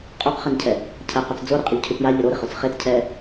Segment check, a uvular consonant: present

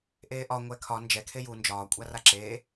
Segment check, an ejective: present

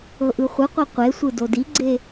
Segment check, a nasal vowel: absent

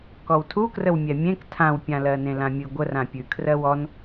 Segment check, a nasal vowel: present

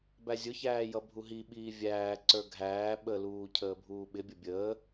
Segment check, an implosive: present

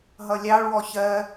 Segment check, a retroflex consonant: present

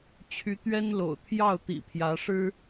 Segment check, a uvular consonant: absent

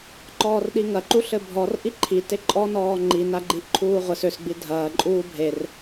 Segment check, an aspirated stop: present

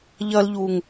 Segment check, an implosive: absent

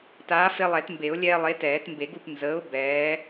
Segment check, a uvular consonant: absent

